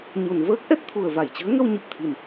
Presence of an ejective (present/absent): absent